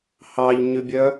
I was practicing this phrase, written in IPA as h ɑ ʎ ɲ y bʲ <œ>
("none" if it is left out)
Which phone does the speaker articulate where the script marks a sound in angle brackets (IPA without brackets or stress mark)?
œ